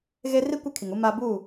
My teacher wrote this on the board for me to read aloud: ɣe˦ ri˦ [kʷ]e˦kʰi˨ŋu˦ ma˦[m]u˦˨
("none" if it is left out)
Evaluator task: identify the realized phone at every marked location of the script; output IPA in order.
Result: kʷ, b

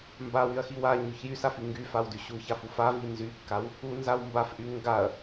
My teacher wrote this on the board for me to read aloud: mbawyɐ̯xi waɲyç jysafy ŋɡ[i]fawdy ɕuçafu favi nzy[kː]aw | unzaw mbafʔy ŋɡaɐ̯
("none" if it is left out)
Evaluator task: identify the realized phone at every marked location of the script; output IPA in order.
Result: y, kː

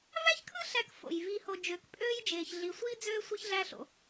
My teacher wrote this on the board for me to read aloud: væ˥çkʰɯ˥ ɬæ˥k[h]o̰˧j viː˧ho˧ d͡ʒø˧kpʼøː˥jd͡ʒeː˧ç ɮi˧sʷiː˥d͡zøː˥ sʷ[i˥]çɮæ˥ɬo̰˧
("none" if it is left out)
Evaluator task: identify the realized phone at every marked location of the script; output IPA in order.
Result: f, i˥

